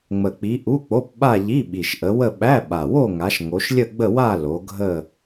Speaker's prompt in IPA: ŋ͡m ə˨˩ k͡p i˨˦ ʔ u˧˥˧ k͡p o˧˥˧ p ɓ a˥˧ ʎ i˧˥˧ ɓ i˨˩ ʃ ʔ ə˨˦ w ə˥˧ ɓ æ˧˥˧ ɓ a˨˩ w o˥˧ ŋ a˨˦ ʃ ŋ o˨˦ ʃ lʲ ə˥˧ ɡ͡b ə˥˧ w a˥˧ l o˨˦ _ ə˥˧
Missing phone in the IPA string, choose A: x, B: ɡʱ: B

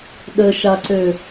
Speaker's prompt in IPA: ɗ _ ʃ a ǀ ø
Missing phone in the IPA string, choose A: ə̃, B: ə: B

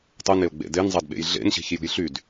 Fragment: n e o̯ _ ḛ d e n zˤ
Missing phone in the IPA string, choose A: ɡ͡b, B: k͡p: A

